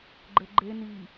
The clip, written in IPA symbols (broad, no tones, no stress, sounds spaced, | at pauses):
ɡ͡ǃ ɘ ɡ͡ǃ e n i